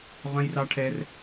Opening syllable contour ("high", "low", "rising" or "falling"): high